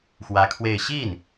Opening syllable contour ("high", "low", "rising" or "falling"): rising